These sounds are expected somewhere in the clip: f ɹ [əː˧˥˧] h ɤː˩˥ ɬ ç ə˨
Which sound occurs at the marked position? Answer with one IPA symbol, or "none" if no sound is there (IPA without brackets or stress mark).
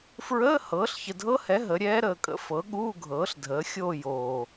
əː˧˥˧